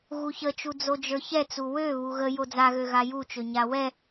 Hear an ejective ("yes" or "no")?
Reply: no